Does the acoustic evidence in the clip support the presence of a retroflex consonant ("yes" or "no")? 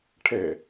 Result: yes